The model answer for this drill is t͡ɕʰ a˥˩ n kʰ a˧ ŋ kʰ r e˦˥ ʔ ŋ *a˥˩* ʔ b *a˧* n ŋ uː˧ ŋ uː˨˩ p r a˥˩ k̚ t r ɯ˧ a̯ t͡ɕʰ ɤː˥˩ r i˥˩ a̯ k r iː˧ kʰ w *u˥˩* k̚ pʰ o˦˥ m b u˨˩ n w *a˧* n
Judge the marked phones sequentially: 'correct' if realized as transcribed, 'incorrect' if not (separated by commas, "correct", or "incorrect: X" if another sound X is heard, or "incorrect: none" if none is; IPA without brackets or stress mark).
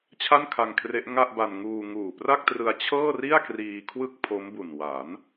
correct, correct, incorrect: ɯ˥˩, incorrect: a˩˦